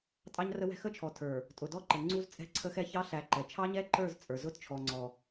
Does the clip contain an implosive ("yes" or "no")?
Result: no